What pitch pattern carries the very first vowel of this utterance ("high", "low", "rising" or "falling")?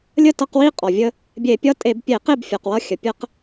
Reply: falling